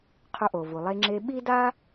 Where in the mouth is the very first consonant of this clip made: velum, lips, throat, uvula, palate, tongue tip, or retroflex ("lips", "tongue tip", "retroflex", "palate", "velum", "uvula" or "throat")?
uvula